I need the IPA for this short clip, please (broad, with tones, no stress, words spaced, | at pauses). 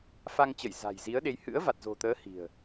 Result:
fa˧ŋt͡ɕə˧˩j za̤˨˩jzi˨˦ə̯ɗe˨˦j hɨ̰˧˥ə̯va˨˩t̚zo̤˨˩t̪əː˨˦ hi̤˨˩ə̯